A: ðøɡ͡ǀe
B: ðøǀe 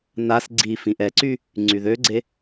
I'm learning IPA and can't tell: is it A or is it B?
A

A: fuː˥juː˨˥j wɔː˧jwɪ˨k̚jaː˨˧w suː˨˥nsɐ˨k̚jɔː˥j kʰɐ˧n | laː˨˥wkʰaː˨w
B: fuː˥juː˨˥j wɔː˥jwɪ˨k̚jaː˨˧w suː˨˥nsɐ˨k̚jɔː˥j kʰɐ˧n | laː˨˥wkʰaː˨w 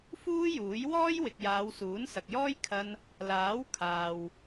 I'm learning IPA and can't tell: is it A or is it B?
B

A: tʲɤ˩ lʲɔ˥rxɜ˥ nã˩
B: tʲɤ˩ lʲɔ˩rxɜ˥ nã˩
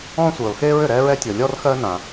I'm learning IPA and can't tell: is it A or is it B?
A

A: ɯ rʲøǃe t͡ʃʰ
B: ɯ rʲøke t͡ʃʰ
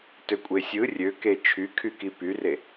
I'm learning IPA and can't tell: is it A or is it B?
B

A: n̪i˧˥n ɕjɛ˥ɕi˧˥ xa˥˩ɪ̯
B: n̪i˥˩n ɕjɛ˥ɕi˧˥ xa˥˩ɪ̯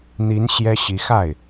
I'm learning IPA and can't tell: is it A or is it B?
A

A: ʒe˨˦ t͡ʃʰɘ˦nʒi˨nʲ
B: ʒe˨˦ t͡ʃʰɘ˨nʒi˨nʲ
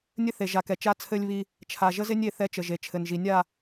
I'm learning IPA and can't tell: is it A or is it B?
B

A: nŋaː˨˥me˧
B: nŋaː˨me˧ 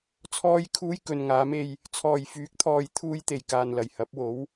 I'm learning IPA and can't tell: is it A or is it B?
A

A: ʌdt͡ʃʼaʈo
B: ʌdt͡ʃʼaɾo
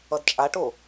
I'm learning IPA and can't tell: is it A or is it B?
A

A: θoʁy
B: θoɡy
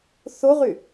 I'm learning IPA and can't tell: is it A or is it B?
A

